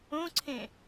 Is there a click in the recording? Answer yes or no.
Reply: yes